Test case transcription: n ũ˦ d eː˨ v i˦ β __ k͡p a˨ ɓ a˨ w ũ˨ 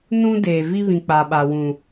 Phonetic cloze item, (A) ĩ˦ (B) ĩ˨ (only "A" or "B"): B